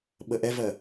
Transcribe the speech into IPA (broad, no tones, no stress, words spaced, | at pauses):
ɓəʔɛvɜ